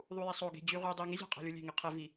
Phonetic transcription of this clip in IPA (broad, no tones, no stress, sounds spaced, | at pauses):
ðˤ u j i sˤ o ɡ e̤ d͡ʑ y ʁ y dˤ e ŋ i zʲ æ̤ qʼ æ̤ lʲ u lʲ e̤ ŋ e qʰ e v i